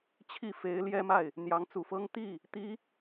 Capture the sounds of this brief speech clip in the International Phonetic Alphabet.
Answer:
t͡ɕʰi˥˩fe˧˥ɪ̯ljɛ˥ma˥˩ɪ̯ | n̪jɑ˧˥ŋt͡su˨˩fɤ˥ŋ t̪i˥˩ | t̪i˧˥

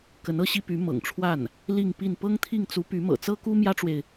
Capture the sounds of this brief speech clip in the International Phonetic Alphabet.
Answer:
kə˧˥nɤ˥ɕi˥py˧˥ mɤ̰˨˩ŋʈ͡ʂʰwa˥˩n | li˥˧ŋpi˥˩n pɤ˥ŋt̪ʰi˥˩ŋt͡su˧˥ py˧˥mɤ̰˨˩t͡sɤ˥ ku˥mjä˥ʈ͡ʂwe˨ɪ̯

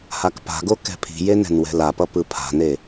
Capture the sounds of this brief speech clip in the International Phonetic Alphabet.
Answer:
hakpa̤ɡo kɛ̤pʰi̤je nɛ̤nwɛ̤lapʌ pɯpʰa̤ne

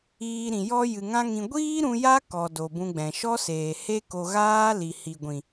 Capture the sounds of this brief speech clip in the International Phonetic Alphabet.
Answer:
iː˧ɾĩ˨ jɔ˧ jɨ˨ŋã˦ŋĩ˧ ɡʷiː˦ɾũ˧ ja˦ kɔ˨ do˨bũ˧ɡ͡bɛ̃˨ ʃɔ˦seː˨he˦ko˧ ɣaː˦ li˨hi˨ɡʷĩ˨

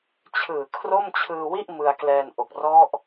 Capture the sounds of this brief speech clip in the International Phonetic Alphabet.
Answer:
t͡ɕʰɯː˨˩ kʰro˥˩mt͡ɕʰɯː˧wi˥˩ʔ mɯ˧a̯klɛː˧nʔo˨˩k̚ rɔ˦˥ʔ

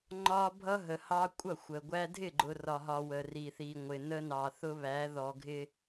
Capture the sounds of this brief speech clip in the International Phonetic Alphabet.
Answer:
ŋ͡ǃɒ˦ bʱʌ˦ɦə˨hɑ˦ kʷʼʌ˦˨xʷə˨ɡʷæ˦ dʱɪ˦˨ɡ͡ǃʊ˨ rɒ˨ɦɒ˨ wə˨ri˨θi˨ ŋʷɪ˨ nə˦nɑ˨θʊ˦βæ˨˦ ðɔ˨ɡʱɪ˦

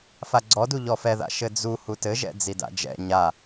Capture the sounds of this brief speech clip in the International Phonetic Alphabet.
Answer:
faɡ͡ǀɔdu ʎɔfɛða̰ ʃɘd͡zu hutɘʒɛ̰ d͡zida̰d͡ʒɛ̰ ɲa

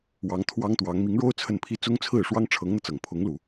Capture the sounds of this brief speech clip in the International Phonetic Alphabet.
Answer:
wɑ˧˥ŋt̪ʰwɑ˥ŋt̪wɑ˧˥ŋ mi˧˥ŋɻo˥ʊ̯ t͡sʰə˥˩npʰi˥ t͡sʊ˥ŋt͡sʰɹ̩˥˩ ʂwɑ˥ŋʈ͡ʂʰɤ˧˥ŋn̪ɤ˧t͡sɤ˨˩ŋ pʰʊ˧˥ŋlu˨˩˦

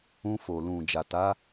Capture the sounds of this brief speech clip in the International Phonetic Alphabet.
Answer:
ũ˧fo˨ lũ˨ d͡ʒa˨ta˨˦

